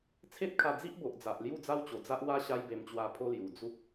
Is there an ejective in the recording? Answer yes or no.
no